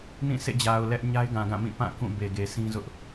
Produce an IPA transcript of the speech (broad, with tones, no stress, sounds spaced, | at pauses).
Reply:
n ĩ˦˨ sʰ ḛ˦˨ d͡ʑ a˨ ʊ̯ l ɛ˦ ʔ ɲ a˦ ɪ̯ ɡ ã˨ ɡ ã˦˨ m ĩ˦˨ p ã˦˨ k ũ˦˨ b e˨ ɡ e˨ sʰ ĩ˦ z ʊ˦ ʔ